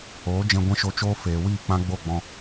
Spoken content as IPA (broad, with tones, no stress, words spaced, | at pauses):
oː˨˦ d͡ʒɛ̃˧ɡʷɛ̃˦ʃo˧t͡ʃoː˦ feː˨wiː˦˨ k͡pã˦ɡ͡bo˦˨ɡ͡bɔ̃˧